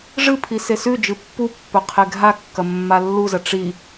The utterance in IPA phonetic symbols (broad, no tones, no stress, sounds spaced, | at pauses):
ʐ ɨ pʰ i s e s ʉ d͡ʒ ɨ pː u pː ɵ qʰ e ɡʱ a kː ɐ mː a lː u z ɐ ʈ͡ʂ i